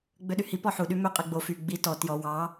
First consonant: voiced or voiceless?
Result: voiced